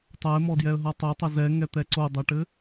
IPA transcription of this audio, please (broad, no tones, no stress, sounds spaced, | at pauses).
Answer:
tˤ ɜ ɪ̯ m ɔ d j ɛ ə̯ ɦ ʌ tˤ ɘ tˤ ə z ɛ ŋ ɛ t̪ ɛ ǀ o dˤ œ ʈ ɘ